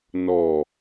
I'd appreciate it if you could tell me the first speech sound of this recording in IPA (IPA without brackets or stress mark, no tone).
n